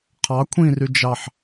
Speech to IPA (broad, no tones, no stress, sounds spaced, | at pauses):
qʰ ɑ kʷʰ ĩ r y d͡ʒ ɑ ħ